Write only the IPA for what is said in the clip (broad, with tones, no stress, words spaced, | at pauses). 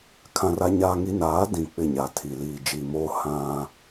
kʰã˦ra˦ɲaː˦ŋi˦ naː˨˦dĩ˨ k͡pɪ˦˨ɲa˨tʰi˨ liː˨d͡ʒiː˨moː˦ hã˦